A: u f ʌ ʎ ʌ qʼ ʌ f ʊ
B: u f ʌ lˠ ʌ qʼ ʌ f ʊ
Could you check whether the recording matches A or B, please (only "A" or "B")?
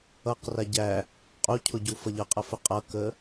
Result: A